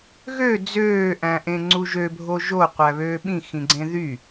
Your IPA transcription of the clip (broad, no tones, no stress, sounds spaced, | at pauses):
ɣ ø d͡z øː ʔ æ̃ ʔ ẽ ŋ͡ǀ u ʒ ø bʱ o ʒ o qʷ æ β øː ɓ ĩ x ĩ ɡ͡ǀ ẽ ð y